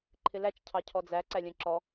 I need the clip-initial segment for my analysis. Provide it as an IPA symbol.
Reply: ǃʰ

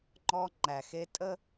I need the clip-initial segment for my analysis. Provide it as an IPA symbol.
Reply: ŋ͡ǃ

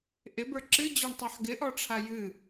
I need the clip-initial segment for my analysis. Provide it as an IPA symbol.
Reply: ʔ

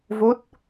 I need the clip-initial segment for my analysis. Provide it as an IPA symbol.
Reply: v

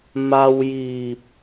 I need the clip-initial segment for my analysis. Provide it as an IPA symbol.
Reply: m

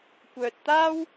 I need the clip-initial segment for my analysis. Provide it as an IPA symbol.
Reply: kʷ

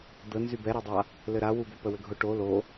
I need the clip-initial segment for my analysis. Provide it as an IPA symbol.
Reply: d̪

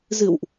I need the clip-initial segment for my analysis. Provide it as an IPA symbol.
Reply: z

